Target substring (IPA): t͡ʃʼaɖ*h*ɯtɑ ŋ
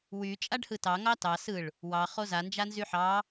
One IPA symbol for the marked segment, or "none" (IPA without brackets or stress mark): h